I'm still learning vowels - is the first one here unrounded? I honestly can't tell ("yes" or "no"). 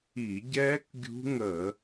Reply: yes